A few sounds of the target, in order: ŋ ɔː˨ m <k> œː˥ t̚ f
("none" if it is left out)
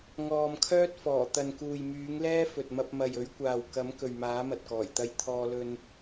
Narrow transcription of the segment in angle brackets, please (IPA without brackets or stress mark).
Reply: kʰ